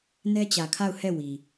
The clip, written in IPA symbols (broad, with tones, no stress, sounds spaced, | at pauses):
n ɛ˦ t͡ɕ ä˨ kʰ a˦˨ ʊ̯ h ɛ˦˨ w i˨